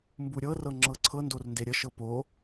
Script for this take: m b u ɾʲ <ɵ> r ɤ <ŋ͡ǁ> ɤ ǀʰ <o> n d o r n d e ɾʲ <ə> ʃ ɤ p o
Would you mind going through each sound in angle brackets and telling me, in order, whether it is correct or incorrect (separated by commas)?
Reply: incorrect, correct, incorrect, correct